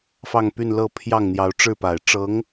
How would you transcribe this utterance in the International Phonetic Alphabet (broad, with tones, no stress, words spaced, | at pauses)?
fɑ˥˧ŋpy˥˧n lɤ˥˧pʰjɑ˥˩ŋ n̪jɑ˧˥ʊ̯ ʈ͡ʂɻ̩˥˩pa˨˩ɪ̯ ʈ͡ʂɤ˧˥ŋ